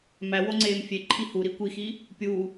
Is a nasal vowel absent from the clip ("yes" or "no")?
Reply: yes